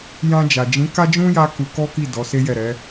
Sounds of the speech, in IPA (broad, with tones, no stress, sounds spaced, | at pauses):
j ã˧ d͡ʒ a˨ d͡ʒ ĩ˨˦ k a˦ d͡ʒ ũ˦ j a˦ k u˧ k ɔ˦ k i˦˨ d ɔ˨˦ s e˦ j ɛ˦˨ ɾ ɛ˨˦